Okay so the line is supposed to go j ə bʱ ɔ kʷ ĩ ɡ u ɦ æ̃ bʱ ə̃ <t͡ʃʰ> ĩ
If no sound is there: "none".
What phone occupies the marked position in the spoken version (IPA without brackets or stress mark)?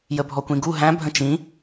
t͡ʃ